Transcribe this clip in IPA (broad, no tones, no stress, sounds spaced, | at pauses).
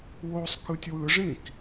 w o sˤ k ɯ tʲ w ɯ ʐ ĩ k